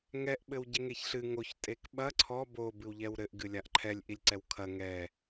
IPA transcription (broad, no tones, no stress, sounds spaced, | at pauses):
ŋ ɛ ʔ ɓ ɘ w ɟ e ŋ e ç ɬ ɨ ŋ o ç tʼ e k ɓ ɐ ǀʰ ɔ b o b ɨ w ʎ ɛ w ɾ ɘ ʔ ɡ ɨ lʲ a ʔ ǃʰ ɛ lʲ ʔ i lʲ ǀ ɛ w kʰ ɐ ŋ ɛ